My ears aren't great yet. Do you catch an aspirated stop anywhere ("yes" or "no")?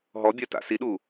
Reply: no